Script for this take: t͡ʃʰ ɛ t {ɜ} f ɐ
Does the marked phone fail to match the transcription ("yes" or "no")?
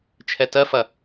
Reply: no